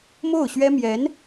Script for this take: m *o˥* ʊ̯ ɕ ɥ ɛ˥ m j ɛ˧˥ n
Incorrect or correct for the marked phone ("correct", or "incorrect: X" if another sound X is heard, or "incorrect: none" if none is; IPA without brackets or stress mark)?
incorrect: o˥˩